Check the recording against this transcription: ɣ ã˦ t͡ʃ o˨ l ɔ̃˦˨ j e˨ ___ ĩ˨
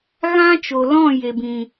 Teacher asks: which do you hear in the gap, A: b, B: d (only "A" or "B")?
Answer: A